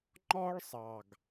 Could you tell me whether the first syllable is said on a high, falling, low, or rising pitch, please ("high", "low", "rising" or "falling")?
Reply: high